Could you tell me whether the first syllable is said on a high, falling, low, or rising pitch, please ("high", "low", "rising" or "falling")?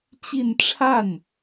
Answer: falling